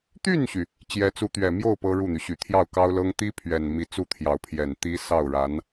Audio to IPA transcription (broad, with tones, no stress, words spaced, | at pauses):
t̪y˥˩nɕy˩ | t͡ɕjɛ˧˥t͡su˧˥t̪ɥɛ˨˩mjo˥˩ʊ̯ pɤ˥ɻu˥˩n̪y˩ɕy˨˩ t̪ʰjɑ˥˩ʊ̯kɑ˥ʊ̯lɤ˥ŋ t̪i˥ pʰɥɛ˨˩n mi˧˥t͡su˥˩t̪ʰjɑ˧˥ʊ̯pʰjɛ˨˩n t̪i˥ sɑ˥˩ʊ̯ɻa˧˥n